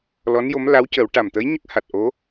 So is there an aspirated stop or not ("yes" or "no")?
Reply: no